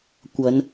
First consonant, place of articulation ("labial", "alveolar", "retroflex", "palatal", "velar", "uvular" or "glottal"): velar